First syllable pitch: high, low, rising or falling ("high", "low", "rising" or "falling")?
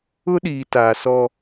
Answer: high